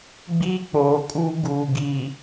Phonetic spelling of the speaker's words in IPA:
ɡ͡b iː˦ k͡p oː˨ kʼ uː˦ ɡ uː˨ ɡ i˨

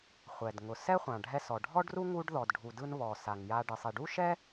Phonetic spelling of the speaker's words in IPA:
χʷ ɛ˩ d ŋ ʊ˩ s ɛ˥ χʷ ã˩ ɖʱ ɛ˧ s ɔ˩ ɖʱ ɔ˥ ɖ r u˥ ŋ u˥ ɖ ð ɔ˩ d ɖʱ u˩ d ɯ˧ n β ɔ˩ s a˩ ŋ j a˧ ɖ ɯ˩ sˤ i˩ ɖ u˥ ʃ ɛ˥

